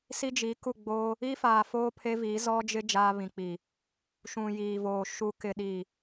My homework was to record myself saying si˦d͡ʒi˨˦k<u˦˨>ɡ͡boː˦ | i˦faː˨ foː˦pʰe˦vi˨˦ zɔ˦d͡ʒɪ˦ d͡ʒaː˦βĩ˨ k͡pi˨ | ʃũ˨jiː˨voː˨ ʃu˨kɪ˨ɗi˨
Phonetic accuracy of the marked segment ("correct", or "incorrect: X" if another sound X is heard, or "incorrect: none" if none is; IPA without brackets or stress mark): correct